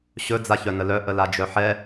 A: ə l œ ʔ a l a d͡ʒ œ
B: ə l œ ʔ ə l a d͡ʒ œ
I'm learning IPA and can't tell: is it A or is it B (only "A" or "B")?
B